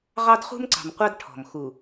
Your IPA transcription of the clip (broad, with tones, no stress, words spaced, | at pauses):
ʁɑ˦dχṳ˦mǀɑ̤˨mqʷɑ˦d ʈʰɔ̤˨m xu˨